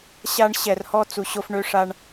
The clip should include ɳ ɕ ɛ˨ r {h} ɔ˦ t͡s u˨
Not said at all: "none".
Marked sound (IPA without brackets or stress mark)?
h